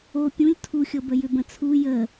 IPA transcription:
o pʲũlʲ tʰuxʲɤbə jʏbə̃t͡sʰu jə

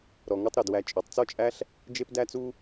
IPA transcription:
ɾɔ˨ŋu˧tˤ ɾu˨d wæ˧t͡ʃʼø˨˦tˤ t͡sɔ˦t͡ʃʼæ˦ɬ | d͡ʒe˦pdæ˦t͡su˦

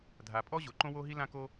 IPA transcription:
dʱa˩pʼɔ˥ ʑo˩ǃõ˥wo˥ɦi˥ lã˥ko˥

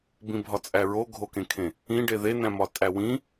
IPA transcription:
bĩbʱɒt͡sʼæɹo ɡʱokẽkʰẽ | ĩɖe ðenæ̃mɒ tʼæwĩ

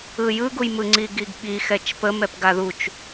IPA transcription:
ɯjɯɡuj mɯŋ͡ǀiɡiɡɓi xɛt͡ʃpə mɛpɡaðut͡ʃ

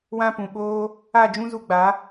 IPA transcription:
wã˦pũ˨ ɓoː˦ | a˦˨d͡ʒũ˦zu˧ ɡ͡ba˨˦

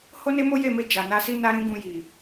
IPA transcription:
ho˦ne˦mo˦ je˦˨me˧ d͡ʒa˨na˧si˦ na˦ɾĩ˦ɡũ˧ji˨

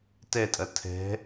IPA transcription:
tɛtʼɐ tʰɛ̤

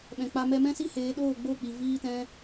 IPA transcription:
ɓɛ̃˨k͡pa˧ mɛ˧mɛ̃˦si˦ heː˨˦ɗoː˦˨ɡ͡bo˦˨k͡pi˨ viː˦tɛ̃˦

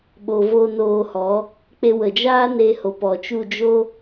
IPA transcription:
ɓo˨vo˧ noː˧hɔ˨˦ | k͡pe˧wə˨d͡ʒaː˦ ne˧ho˨pɔ˨t͡ʃu˦˨ d͡ʒo˦

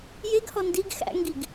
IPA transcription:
jeɡhɔ ndiɡ xæ̰ŋɡiɡ

